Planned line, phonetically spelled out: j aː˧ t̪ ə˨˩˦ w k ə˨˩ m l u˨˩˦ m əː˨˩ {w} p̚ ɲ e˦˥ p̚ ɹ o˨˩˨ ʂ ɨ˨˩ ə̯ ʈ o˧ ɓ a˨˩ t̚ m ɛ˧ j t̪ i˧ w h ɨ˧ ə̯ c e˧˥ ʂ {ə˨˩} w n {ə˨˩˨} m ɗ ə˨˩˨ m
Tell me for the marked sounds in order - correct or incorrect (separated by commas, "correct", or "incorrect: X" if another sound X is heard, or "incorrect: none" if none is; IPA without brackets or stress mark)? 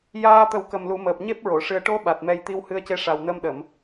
incorrect: none, incorrect: a˨˩, incorrect: ə˧